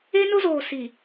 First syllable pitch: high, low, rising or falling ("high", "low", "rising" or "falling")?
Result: high